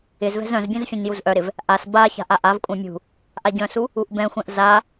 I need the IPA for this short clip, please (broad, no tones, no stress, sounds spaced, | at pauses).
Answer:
ɪ z v ɛ̤ z œ̃ z bʲ œ̃ z fʲ ɛ̃ ɲ j u z ʔ œ ɾ ɪ v | ʔ a s b a ç a̤ ʔ a ʔ a v kʷʼ œ̃ mʲ ṳ | ʔ a ɟ œ̃ s u | u ʔ b ɛ̃ xʷ ɛ̃ ʔ z a